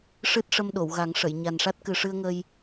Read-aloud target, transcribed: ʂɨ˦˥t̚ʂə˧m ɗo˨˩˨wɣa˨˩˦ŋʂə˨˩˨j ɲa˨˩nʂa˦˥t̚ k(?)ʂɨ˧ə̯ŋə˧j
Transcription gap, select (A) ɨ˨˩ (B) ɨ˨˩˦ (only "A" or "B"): A